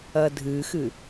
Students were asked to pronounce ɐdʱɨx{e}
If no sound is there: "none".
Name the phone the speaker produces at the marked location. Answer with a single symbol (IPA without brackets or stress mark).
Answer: ɨ